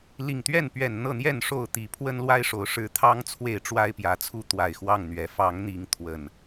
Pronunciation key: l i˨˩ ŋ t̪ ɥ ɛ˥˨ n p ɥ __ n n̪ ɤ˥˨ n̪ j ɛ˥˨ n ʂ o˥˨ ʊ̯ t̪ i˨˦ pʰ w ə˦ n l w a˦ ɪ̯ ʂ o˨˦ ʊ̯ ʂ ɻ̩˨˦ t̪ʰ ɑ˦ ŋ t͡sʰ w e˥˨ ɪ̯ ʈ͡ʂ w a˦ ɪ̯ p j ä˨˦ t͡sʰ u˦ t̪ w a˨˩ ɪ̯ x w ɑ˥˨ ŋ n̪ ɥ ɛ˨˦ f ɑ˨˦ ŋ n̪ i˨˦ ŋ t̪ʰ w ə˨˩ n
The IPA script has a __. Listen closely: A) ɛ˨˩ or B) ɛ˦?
A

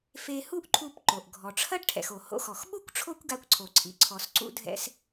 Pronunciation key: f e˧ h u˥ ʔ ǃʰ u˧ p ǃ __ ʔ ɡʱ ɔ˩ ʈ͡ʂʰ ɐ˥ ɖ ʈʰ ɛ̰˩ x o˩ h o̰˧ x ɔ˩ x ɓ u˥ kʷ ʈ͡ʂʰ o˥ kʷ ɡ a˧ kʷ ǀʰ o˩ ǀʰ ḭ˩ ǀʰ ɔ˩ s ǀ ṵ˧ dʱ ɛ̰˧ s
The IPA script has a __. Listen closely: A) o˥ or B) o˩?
B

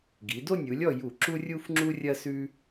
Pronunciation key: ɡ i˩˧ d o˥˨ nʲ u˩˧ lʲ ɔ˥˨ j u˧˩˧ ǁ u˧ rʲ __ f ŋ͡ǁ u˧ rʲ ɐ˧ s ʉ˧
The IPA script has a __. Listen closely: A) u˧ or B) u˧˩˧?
A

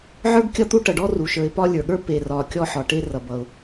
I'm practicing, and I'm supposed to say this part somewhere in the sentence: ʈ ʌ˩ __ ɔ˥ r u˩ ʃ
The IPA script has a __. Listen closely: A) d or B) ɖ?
B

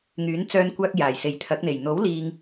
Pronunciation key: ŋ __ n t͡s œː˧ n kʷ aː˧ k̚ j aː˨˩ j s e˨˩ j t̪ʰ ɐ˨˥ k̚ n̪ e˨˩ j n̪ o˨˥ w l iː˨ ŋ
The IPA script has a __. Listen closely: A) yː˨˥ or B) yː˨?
A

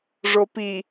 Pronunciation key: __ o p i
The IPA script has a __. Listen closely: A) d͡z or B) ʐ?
B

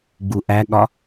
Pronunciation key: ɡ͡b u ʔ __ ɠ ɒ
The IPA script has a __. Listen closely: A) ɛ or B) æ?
B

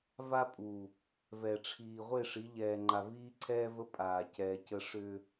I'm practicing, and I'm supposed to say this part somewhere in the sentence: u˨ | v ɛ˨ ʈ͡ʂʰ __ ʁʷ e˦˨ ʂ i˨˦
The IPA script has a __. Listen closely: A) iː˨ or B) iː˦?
A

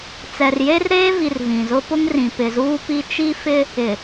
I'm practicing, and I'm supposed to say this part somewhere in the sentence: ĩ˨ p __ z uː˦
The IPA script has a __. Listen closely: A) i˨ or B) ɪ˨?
B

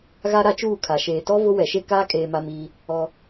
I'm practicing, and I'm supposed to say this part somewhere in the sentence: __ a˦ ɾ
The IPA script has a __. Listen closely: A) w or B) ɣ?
B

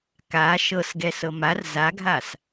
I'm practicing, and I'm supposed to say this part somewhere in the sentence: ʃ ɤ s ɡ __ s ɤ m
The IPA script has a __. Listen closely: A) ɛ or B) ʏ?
A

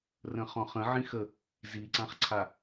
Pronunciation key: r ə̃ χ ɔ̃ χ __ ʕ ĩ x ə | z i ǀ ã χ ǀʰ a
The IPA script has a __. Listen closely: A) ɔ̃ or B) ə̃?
B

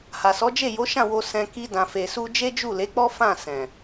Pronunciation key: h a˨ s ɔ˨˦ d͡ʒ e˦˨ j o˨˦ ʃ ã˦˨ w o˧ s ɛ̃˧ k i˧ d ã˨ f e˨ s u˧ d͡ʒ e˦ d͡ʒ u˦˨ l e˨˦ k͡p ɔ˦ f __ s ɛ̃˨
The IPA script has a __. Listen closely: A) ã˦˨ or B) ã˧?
A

